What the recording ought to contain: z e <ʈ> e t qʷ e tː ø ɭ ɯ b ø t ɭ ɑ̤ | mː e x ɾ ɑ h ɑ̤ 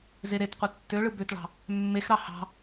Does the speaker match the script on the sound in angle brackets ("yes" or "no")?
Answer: no